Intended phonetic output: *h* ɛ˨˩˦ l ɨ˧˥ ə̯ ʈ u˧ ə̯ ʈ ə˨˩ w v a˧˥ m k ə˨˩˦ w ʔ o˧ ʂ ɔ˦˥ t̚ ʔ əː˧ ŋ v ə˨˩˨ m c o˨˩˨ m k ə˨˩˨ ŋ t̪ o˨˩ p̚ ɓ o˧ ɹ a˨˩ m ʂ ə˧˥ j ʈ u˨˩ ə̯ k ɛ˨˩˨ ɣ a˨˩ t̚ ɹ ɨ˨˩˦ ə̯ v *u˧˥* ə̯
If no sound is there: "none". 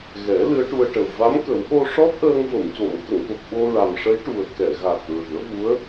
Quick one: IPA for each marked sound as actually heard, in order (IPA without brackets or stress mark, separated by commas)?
ɣ, u˧˥